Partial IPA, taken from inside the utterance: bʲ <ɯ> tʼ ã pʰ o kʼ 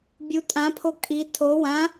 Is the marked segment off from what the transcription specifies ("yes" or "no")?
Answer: yes